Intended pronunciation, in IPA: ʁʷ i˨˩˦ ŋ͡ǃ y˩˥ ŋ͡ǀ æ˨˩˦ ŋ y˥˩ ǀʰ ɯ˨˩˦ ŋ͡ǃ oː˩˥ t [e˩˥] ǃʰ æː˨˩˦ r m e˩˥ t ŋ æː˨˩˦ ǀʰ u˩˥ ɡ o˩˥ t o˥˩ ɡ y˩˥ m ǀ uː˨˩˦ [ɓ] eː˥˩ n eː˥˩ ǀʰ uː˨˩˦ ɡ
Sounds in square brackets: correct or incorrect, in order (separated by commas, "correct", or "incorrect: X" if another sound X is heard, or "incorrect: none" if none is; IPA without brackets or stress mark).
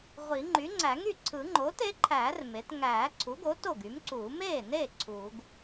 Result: correct, incorrect: m